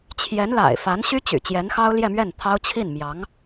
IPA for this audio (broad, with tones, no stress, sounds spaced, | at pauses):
t͡ɕʰ j ɛ˧˥ n l a̰˨˩ ɪ̯ f a˧˥ n ɕ y˥ t͡ɕ y̰˨˩ t͡ɕ j ɛ˧˥ n x ɑ˥ ʊ̯ l j ɛ˥˧ m ɥ ɛ˥˩ n t̪ʰ ɑ˥ ʊ̯ t͡ɕʰ i˥˩ n m j ɑ˧˥ ŋ